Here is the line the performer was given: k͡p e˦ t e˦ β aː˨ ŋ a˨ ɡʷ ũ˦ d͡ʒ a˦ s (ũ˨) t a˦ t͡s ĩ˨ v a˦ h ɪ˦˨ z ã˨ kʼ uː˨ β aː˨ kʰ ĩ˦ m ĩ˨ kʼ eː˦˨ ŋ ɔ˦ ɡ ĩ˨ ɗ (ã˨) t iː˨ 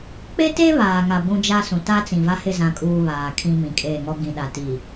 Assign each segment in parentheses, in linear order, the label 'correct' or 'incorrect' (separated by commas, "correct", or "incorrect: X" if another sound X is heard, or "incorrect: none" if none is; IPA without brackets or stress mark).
correct, incorrect: a˨